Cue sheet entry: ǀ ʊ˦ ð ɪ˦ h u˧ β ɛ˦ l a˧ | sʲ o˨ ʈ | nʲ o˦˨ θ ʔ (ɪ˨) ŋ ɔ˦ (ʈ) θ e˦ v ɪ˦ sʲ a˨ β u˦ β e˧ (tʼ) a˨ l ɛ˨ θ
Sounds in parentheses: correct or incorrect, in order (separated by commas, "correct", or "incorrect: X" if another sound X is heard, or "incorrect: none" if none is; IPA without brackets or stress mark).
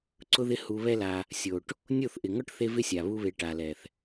correct, correct, incorrect: ʈ